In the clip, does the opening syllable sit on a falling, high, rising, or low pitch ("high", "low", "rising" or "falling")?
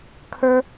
high